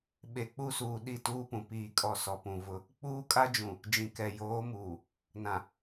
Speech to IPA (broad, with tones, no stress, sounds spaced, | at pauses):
ɓ e˨ k͡p u˦ s uː˨ ɗ i˦˨ t uː˦ p ũ˨ p iː˨ kʼ ɔ˨ s ɔ˨ p ũ˨ v ʊ˦ | k͡p uː˦ kʼ a˦ d͡ʒ ũ˨ | d͡ʒ ĩ˨ k ɛ˨ j oː˨˦ m uː˨ | n ã˨